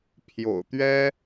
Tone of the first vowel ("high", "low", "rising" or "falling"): low